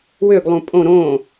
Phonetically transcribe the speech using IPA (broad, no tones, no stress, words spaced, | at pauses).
wøɡlˠũ pʼõ ɾõ